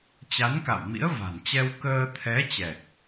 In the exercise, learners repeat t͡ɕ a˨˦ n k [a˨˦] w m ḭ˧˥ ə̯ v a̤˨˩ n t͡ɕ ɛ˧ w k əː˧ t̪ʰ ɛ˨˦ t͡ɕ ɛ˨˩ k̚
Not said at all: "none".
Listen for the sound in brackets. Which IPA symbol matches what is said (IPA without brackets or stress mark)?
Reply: a̰˧˨